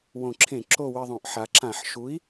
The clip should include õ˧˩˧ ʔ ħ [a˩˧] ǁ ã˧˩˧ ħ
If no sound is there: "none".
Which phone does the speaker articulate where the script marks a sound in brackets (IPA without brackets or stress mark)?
a˩˧